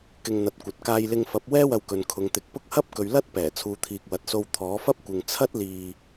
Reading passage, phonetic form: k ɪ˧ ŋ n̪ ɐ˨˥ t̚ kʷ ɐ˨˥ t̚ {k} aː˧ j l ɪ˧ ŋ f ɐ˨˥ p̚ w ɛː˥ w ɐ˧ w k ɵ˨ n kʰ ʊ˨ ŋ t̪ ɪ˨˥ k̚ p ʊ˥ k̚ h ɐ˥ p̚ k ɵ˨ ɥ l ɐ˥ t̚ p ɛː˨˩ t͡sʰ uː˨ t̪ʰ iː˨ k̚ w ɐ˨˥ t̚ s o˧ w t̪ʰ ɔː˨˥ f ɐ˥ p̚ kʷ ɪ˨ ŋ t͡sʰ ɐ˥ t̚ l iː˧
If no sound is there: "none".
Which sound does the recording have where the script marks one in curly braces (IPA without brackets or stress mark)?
k